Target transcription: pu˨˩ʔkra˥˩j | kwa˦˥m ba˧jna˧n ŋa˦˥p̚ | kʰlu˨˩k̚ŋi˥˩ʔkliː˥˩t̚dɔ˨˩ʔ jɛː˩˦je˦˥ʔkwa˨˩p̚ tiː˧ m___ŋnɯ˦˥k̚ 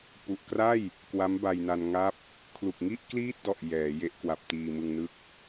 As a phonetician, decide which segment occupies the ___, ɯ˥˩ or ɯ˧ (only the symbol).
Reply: ɯ˧